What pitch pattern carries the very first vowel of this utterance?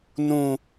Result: low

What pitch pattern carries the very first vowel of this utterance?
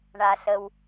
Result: low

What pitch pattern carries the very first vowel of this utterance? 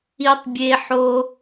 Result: high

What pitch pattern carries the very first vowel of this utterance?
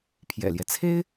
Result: low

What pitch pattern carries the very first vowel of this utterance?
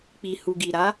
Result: low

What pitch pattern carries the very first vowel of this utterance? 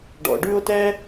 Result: low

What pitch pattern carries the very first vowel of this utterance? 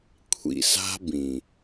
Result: low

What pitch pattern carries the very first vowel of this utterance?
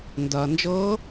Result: low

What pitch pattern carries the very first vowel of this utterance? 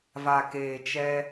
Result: low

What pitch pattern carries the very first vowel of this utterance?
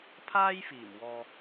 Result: high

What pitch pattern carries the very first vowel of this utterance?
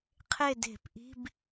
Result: falling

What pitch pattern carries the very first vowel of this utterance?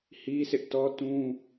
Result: high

